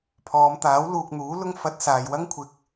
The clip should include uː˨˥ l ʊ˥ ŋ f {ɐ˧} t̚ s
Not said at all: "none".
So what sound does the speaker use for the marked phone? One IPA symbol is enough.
ɐ˧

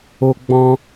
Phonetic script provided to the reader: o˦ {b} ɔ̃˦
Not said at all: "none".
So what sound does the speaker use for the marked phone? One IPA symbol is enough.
ɡ͡b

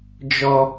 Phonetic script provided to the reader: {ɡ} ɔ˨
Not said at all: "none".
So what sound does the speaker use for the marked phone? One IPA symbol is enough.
d͡ʒ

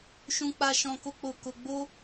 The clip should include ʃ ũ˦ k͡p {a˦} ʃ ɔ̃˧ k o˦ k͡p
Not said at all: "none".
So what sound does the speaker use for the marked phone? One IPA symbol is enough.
a˦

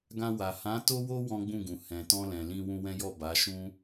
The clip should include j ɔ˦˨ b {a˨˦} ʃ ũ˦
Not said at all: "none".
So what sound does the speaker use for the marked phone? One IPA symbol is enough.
a˨˦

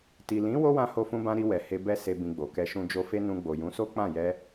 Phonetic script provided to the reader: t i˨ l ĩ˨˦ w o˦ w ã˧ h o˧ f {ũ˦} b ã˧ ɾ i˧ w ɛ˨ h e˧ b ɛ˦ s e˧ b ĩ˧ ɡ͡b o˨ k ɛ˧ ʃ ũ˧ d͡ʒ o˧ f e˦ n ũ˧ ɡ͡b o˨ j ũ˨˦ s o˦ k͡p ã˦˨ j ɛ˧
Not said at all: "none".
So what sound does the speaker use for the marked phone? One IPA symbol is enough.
ũ˧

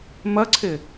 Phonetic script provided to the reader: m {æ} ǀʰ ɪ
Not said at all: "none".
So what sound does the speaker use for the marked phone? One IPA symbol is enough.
ɐ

